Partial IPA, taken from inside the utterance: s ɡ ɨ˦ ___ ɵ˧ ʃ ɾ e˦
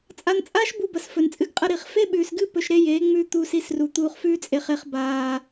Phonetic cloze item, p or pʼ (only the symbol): p